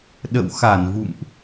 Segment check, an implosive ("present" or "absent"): present